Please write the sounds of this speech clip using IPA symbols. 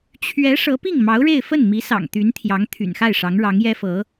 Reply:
t͡ɕʰ ɥ ɛ˧˥ ʂ ɤ˧˥ p i˥˩ ŋ m ɑ˧˥ ʊ̯ ɻ e˥˧ ɪ̯ f ə˥˩ n m i˧˥ s ɑ̰˨˩ ŋ t̪ y˧˥ n t̪ʰ j ɑ˧˥ ŋ t̪ʰ y̰˨˩ n x a˥˩ ɪ̯ ʂ ɑ˧˥ ŋ ɻ ɑ˧˥ ŋ j ɛ˥ f ɤ˧˥

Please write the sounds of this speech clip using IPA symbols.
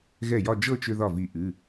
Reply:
ɣ ɛ˥˩ j ɒ˥˧ d͡ʒ ɤ˥˧ t͡ʃ ʏ˧ ð ɒ˥˩ v i˧˩ ʔ ɨ˩˧˩

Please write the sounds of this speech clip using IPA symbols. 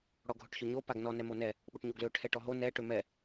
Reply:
ɽ ɔ ɡʱ ʊ ʈ ç ʊ ɲ o p a ɡ n ɔ n ɛ m o n ɛ | ɓ ʊ ʈ ɲ o ɡ l ø ʈʰ ɛ ʈ ɔ ɦ o n ɛ ʈ ø m ɛ

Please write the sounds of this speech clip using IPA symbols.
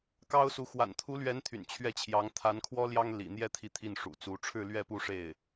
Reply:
k ɑ˥ ʊ̯ s u˧˥ x w a̰˨˩ n t̪ʰ u˧˥ l ɥ ɛ˧˥ n t̪ʰ y̰˨˩ n t͡ɕʰ ɥ ɛ˥˩ t͡ɕʰ j ɑ˧˥ ŋ t̪ʰ a˧˥ n kʰ w ɔ˥ l j ɑ˥ ŋ l ḭ˨˩ n̪ j ɛ˥˧ t̪ʰ i˥˧ t̪ʰ i˥˩ n ʂ ṵ˨˩ t͡s u˧˥ ʈ͡ʂʰ ɻ̩˥˧ l ɥ ɛ˥˧ p u˥˧ ʂ e˥˩ ɪ̯

